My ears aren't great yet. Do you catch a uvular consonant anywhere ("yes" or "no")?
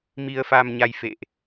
no